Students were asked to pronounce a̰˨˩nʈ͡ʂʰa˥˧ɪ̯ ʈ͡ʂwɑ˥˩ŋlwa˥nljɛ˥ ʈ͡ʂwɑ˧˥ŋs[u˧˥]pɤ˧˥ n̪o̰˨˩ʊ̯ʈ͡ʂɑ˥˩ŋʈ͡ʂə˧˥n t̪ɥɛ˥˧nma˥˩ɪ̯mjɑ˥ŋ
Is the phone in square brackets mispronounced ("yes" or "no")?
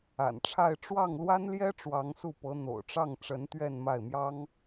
yes